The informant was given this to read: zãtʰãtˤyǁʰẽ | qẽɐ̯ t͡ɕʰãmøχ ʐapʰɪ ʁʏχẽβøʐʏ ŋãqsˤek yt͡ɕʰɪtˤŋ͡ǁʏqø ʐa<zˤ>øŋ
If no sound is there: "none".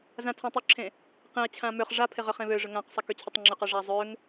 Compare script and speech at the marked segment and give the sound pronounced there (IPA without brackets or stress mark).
zˤ